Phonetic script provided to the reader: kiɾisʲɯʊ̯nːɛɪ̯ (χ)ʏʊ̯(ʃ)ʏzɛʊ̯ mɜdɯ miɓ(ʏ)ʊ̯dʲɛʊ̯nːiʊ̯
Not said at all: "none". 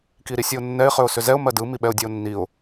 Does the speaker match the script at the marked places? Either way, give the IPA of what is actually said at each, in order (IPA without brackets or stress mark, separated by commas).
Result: χ, s, ɛ